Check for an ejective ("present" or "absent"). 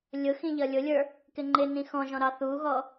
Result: absent